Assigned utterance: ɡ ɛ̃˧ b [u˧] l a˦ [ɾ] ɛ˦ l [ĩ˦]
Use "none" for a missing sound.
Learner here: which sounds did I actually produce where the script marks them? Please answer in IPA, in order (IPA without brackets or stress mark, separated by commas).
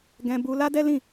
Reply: u˧, d, ĩ˦˨